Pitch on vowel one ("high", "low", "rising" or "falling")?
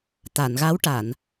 low